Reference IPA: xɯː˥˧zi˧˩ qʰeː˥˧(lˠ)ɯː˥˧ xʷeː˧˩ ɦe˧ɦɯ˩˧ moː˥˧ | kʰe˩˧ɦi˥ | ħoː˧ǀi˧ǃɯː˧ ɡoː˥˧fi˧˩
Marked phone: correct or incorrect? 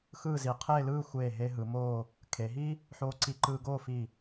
incorrect